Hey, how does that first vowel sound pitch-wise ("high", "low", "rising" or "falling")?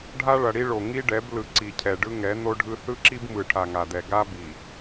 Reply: high